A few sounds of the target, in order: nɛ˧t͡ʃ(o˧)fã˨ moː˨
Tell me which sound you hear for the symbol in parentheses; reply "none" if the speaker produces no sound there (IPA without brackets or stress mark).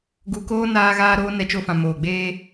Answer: o˧